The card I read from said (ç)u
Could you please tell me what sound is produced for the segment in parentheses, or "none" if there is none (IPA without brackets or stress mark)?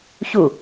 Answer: ç